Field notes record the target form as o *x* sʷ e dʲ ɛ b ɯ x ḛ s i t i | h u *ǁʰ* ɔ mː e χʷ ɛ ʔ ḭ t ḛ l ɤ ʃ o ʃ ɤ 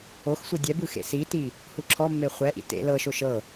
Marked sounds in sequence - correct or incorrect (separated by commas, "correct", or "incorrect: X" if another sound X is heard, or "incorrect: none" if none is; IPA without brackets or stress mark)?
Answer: correct, correct